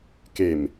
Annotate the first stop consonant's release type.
plain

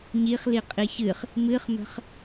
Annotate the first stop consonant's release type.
ejective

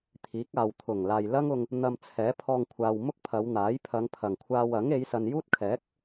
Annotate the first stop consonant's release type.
aspirated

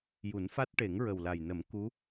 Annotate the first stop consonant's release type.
plain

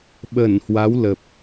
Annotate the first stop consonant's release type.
implosive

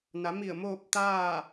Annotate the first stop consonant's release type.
plain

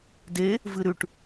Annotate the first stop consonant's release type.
plain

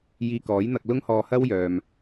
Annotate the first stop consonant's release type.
plain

